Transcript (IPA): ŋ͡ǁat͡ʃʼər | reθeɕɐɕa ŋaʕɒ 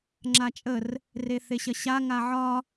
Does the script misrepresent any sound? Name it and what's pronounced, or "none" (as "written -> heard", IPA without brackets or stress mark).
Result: none